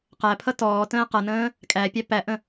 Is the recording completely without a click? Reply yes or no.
yes